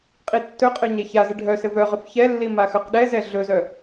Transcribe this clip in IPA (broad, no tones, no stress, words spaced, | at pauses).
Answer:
qʼitːɵqʼœ ɲɛçazɘ ɖʱœ sɘvœʁɵf çɛlːi maxœqɗɛzɛ ɮɵzœ